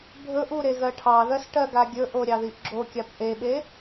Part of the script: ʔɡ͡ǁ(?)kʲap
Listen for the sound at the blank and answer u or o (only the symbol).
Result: o